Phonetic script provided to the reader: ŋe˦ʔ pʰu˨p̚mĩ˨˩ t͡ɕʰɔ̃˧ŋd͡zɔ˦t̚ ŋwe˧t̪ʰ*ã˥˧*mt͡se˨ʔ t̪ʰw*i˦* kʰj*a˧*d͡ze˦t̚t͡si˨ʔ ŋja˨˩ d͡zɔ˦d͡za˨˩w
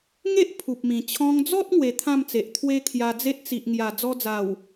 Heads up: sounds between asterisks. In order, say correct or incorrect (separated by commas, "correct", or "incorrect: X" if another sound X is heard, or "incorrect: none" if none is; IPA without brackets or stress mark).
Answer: correct, incorrect: e˦, correct